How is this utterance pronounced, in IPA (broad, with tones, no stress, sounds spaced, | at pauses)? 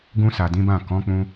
ɡ ũ˧ s a˨ d ĩ˨˦ b ã˦˨ k ɔ̃˨˦ k͡p ũ˧